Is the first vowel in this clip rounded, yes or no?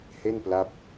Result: no